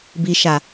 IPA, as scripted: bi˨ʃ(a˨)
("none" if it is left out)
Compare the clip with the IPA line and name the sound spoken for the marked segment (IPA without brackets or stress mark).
a˨